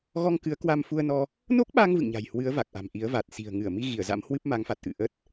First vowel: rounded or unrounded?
rounded